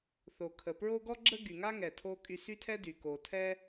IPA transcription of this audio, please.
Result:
θ o˩ kʰ ə˩ p ɹ o˥ ɡ ɔ˥ ɡ͡ǁ ə˥ ɡ y˩ ŋ a˥ ŋ ɛ˩ tʰ o˧ kʼ y˧ s y˥ tʰ ɛ˥ d y˩ k o˩ tʰ ɛ˥

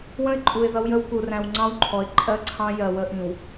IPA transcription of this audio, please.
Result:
w ə̃˦ ɪ̯ ǃʼ u˨ ɪ̯ ð ʌ˦ w j ə˦ w k u˨ r æ̃˨ w ŋ͡ǀ ɑ̃˦ w ǃʰ ɔ˨ ɪ̯ ǃʼ ɜ˦ ǀʰ ɑ̃˦ j ɜ˨ w ə˦ ʔ ĩ˨ w

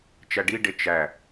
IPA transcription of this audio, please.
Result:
t͡ʃ æ ɖ i ɖ e t͡ʃ æ

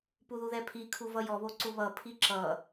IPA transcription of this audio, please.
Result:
p u ð u ð ɛ pʰ i kʰ u v ʌ j ɔ β o ǀ u β ʌ pʰ i ǁ ʌ

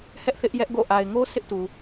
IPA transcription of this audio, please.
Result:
h ɛ˦ ʔ θ ɪ˦ ʔ j ɛ˦ ʔ ɡ o̰˦˨ ʔ a˨ ɪ̯ ŋ o˦ sʰ ɪ˦ ʔ t u˨

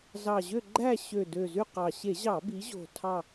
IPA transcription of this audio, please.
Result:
z ɑ˨˩ ʑ ø˦˨ ɡ͡ǃ æ˦˨ ɕ ø˨˩ d ø˨˩ z y˦˨ q ɑ˨˩ ɕ e˧˩˧ ʑ ɑ˧˩˧ b i˩˧ ʑ o̤˨˩ tʰ ɑ˦˨

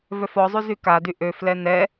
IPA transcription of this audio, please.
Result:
v œ f ɔ zˤ y z y k a d y ʔ ø f l ɛ n ɛ

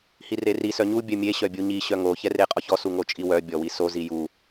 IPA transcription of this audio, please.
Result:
h i r e r i s œ ɲ u bʲ œ mʲ e ɕ œ bʲ u ɲ i ɕ œ ŋ o ç ɛ r e qʼ ɔ ç ɔ s u ŋ o t͡ʃʼ i w œ bʲ ɔ w i s o z i j u

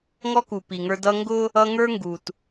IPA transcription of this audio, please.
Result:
ŋ ɔ˦ k u˨ p i˨ ŋ ə˞˦ d ʌ˦ ŋ ɡ ʊ˦ | ʌ˦ ŋ ə˞˦ ŋ ɡ u˨ t

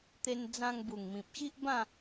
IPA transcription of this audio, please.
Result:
t̪ e˧ n d͡z ã˧ ŋ b u˨˩ ŋ m ĩ˨ p̚ ɕ i˦ ʔ b ã˥˧

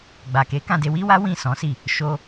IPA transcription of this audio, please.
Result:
ɡ͡b a˨ k e˨˦ k ã˦˨ d e˧ w i˦ w a˦ w ĩ˦˨ s ɔ̃˨˦ s i˦˨ | ʃ o˧

